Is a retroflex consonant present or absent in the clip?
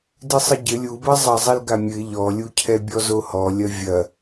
absent